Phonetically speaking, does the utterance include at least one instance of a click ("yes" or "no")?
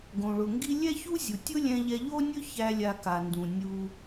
no